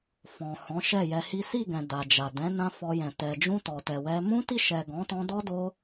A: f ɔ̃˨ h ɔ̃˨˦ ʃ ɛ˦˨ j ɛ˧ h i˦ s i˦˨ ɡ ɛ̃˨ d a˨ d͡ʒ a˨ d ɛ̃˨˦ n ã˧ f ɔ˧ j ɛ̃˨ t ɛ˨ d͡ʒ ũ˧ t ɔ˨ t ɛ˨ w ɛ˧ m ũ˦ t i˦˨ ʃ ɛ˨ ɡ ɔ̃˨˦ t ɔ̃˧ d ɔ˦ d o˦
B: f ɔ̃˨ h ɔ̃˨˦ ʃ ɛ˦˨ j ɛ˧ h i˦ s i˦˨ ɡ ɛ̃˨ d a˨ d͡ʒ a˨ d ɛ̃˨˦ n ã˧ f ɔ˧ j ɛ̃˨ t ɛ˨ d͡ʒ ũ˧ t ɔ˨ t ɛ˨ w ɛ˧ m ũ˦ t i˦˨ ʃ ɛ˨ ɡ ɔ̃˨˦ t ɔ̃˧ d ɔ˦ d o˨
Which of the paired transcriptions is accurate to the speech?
A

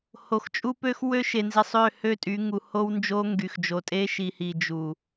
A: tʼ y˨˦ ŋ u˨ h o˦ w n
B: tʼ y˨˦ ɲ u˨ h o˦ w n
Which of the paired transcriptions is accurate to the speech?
A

